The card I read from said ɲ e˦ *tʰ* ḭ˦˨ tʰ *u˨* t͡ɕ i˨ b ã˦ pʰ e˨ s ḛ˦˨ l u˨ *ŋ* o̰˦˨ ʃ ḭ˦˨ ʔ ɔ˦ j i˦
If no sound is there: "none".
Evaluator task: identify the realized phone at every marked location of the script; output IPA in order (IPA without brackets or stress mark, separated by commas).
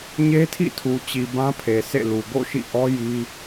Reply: tʰ, u˨, ɡ